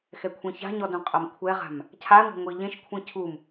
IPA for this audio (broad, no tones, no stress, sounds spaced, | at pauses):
x ɛ kʷʰ ẽ ç a̤ ɲ ɔ d ũ qʼ ɐ m kʷʰ ɛ ʁ a̤ m | cʰ a ŋʷ a̤ ŋʷ i ʎ ẽ ʃ kʷʰ ĩ cʰ u m